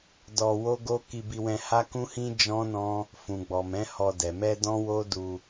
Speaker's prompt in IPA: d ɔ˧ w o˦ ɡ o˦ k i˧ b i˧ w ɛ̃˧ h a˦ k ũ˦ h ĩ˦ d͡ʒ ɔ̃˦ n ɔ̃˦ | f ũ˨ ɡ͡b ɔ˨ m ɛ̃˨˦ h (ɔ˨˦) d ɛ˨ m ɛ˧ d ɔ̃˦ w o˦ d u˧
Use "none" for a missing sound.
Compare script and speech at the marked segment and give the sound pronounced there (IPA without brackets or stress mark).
ɔ˧